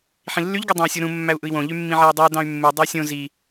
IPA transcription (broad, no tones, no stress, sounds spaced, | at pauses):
ħ ĩ lː y ʎ ɡ u dˤ ɑ̃ u̯ sʲ o ɾ ũ mː æ u̯ ʔ ɯ i̯ w õ ʎ y mː ĩ ʕ e i̯ dˤ ɯ u̯ d ɑ̃ y̯ mː u dˤ æ sʲ õ z i